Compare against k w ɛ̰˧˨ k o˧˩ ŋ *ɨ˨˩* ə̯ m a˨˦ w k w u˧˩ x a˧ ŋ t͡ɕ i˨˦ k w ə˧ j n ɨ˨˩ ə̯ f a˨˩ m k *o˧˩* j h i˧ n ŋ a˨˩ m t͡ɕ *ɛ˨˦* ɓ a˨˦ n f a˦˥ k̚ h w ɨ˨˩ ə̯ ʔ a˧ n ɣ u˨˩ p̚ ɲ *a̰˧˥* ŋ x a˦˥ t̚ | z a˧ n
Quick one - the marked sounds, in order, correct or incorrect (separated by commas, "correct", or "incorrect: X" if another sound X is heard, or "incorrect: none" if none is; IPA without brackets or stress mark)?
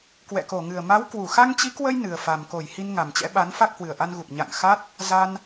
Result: correct, correct, incorrect: ɛ̰˧˥, incorrect: a̰˧˨